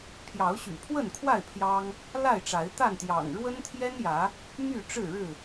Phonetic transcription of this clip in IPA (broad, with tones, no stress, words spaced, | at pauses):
pʰjɑ˨˦ʊ̯ɕy̰˨˩pʰwə˥˨nkʰwa˥˨ɪ̯ pʰjɑ˦ŋ | la˥˨ɪ̯ʈ͡ʂa˨˦ɪ̯ t̪a˥˨nt̪jɑ̰˨˩ŋ ɻwə˦nt̪ʰjɛ˦njä˨˦ | my˥˨ʈ͡ʂɻ̩˥˨ɻɻ̩˥˨